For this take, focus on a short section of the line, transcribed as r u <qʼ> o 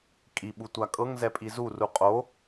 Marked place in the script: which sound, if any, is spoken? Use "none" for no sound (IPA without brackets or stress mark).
qʼ